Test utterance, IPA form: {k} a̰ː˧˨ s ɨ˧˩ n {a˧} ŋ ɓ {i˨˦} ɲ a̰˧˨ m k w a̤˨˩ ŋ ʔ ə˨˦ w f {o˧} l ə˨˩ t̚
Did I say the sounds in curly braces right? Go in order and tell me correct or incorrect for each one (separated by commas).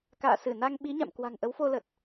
correct, correct, correct, correct